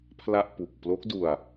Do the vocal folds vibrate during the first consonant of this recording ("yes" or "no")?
no